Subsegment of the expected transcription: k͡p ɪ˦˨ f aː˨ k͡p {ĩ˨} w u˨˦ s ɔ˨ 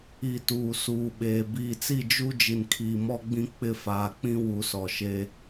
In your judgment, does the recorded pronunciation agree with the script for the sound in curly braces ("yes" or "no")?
no